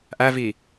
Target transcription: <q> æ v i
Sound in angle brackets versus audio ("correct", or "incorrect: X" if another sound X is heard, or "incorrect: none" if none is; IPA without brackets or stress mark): incorrect: ʔ